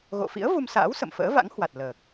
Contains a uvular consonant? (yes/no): no